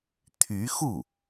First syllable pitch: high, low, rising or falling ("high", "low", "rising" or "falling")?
rising